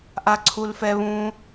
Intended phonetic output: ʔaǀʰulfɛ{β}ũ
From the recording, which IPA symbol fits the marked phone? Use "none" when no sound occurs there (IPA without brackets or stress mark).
β